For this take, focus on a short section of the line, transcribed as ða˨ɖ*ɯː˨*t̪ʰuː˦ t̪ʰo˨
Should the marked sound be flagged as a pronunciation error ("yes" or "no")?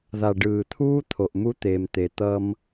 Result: no